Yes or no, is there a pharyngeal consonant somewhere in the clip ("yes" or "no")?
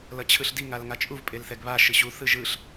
no